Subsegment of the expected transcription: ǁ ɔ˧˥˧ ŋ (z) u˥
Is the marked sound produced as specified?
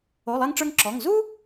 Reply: yes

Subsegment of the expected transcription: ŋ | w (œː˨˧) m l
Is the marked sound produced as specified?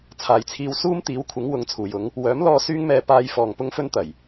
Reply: no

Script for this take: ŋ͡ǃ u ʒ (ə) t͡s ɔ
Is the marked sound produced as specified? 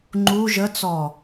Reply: yes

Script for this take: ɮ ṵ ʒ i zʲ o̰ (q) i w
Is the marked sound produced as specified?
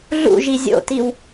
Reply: no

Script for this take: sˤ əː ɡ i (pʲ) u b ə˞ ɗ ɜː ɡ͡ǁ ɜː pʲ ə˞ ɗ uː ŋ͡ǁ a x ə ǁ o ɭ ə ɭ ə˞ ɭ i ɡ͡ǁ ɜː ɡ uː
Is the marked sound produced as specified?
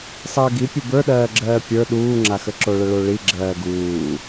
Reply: yes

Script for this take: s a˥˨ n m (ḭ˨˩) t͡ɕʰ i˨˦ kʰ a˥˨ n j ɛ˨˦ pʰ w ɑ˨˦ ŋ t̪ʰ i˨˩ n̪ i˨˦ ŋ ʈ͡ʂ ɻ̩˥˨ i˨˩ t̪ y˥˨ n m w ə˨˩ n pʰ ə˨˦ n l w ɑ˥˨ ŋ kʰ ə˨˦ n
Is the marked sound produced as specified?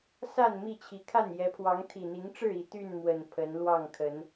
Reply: no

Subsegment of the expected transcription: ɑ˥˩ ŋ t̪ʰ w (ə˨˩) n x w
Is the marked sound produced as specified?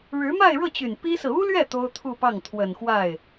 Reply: yes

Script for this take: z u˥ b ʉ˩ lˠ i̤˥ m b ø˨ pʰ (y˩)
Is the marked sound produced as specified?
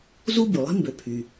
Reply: yes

